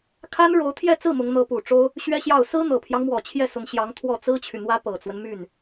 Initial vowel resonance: oral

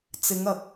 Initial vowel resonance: oral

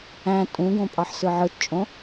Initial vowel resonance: nasal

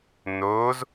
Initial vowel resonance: oral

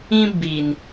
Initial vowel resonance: nasal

